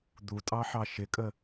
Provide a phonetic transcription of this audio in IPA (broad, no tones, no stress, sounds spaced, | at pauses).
d̪ u tʼ ɑ ħ ɑ ʃ ɪ kʼ ə